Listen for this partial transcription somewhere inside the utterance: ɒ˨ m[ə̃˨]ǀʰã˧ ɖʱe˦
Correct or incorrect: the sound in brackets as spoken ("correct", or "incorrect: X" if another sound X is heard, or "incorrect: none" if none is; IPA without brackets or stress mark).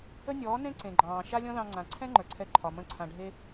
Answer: incorrect: ə̃˦˨